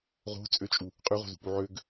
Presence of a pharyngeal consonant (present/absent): present